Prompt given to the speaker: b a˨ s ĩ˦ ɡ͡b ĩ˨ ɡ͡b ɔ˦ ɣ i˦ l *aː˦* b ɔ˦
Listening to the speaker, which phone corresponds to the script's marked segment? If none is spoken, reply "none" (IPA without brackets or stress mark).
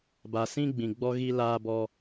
aː˦